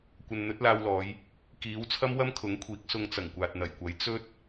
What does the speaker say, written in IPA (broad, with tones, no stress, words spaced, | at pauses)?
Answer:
kʷɐ˨nn̪ɵ˨˥t̚laː˧wlɔː˨˧j | kiː˨˥w t͡sʰɐ˥mwɐ˥mkʰʊ˨˥ŋkʷʰiː˨˥k̚ sʊ˧ŋt͡sɐ˨˩ŋkʷaː˨t̚ n̪ɐ˨˩jkʷɐ˨˥j t͡sɵ˥t̚